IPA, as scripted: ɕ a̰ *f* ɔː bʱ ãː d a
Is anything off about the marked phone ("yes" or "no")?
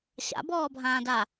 yes